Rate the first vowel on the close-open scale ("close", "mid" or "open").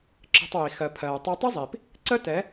mid